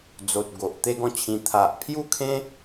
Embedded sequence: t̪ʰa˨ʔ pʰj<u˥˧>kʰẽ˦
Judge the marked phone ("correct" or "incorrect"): correct